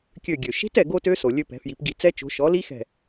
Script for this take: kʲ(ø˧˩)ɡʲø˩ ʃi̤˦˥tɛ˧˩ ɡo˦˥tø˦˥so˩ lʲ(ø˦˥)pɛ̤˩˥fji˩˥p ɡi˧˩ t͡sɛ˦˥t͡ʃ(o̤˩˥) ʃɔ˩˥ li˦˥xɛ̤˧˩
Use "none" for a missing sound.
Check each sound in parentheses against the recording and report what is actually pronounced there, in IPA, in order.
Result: ø˧˩, ø˦˥, o̤˩˥

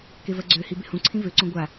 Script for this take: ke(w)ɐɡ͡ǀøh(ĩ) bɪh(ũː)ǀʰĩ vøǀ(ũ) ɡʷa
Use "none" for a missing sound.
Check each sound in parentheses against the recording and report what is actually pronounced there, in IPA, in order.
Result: v, i, ũ, õ

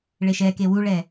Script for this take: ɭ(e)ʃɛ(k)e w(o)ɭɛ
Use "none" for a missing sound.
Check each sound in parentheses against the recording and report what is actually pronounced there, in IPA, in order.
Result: e, k, u

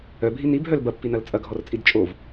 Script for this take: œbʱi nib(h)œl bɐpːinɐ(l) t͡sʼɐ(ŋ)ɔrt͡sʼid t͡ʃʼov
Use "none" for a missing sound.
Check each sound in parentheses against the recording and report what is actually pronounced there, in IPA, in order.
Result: ɦ, l, ɡʱ

